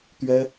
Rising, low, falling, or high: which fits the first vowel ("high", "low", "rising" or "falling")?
high